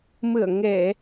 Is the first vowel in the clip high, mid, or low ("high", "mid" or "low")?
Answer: high